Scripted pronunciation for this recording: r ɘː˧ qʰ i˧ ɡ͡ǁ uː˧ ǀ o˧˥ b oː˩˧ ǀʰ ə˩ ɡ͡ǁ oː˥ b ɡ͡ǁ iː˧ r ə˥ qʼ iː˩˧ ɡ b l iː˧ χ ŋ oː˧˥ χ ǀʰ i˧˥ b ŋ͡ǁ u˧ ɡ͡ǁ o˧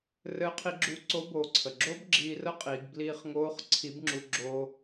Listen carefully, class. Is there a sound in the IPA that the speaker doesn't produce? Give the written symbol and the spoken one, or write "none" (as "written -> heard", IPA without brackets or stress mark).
none